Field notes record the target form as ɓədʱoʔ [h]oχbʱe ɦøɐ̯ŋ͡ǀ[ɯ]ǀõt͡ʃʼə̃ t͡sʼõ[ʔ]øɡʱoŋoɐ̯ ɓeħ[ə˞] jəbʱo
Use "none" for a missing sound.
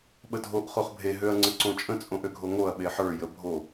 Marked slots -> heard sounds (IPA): χ, ə, ʔ, ə˞

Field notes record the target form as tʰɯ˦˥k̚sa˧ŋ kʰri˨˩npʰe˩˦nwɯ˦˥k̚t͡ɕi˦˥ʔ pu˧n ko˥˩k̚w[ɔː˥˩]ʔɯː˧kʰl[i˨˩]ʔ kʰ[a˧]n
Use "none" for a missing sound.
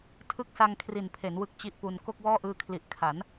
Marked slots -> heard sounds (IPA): ɔː˥˩, i˨˩, a˩˦

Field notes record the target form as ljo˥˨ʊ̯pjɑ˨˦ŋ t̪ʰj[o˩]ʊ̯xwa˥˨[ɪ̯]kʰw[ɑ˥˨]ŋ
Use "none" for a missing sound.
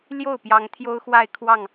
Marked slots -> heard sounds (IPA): o˦, ɪ̯, ɑ˥˨

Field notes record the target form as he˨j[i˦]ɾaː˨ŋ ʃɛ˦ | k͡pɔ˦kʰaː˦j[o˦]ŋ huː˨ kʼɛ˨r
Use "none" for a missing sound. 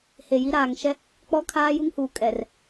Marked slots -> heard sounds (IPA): i˦, u˦

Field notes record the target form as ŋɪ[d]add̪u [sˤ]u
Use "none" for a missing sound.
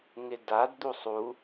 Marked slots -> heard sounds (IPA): d, sˤ

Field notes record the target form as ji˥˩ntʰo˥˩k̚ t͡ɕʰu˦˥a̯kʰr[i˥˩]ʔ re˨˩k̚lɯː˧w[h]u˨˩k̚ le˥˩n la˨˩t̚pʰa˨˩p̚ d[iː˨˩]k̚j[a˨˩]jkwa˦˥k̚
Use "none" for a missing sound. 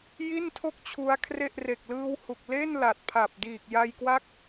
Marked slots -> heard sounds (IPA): e˥˩, h, iː˨˩, a˧

